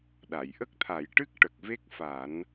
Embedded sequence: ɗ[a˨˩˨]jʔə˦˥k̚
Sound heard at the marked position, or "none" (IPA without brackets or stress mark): a˨˩˨